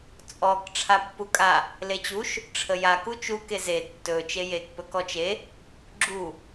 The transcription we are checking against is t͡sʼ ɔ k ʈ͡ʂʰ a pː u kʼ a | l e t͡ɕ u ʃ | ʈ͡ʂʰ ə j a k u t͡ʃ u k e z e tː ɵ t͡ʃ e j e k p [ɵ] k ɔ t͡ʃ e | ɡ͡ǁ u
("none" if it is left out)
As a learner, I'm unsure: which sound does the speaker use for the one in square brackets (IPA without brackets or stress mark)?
ɵ